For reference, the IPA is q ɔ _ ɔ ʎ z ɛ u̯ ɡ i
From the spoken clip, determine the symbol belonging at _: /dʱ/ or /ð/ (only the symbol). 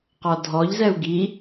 dʱ